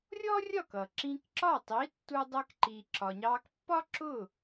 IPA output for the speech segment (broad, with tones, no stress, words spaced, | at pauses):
rʲɔ˥rʲɒ˥˩k ʌ˩ǁĩ˧kǁɒ˥˩ tˤi˩˥tːu˧dˤɜ˧kǃi˩ ǁɒ˩ɲɑ˧kpːɒ˥ ǁʊ˥˩